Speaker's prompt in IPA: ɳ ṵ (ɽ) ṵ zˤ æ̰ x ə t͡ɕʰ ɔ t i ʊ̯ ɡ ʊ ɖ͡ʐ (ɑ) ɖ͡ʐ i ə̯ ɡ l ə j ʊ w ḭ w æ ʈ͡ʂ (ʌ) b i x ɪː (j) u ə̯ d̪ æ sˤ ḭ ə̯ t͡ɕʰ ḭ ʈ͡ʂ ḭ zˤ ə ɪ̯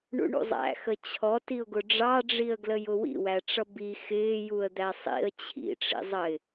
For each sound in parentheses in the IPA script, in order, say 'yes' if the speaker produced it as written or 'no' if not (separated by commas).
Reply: no, yes, yes, yes